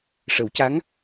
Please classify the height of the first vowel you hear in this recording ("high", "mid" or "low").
mid